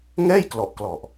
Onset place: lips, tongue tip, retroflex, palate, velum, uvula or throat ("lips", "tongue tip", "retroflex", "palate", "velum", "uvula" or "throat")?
velum